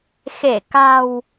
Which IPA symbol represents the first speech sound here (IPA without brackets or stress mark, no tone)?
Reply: x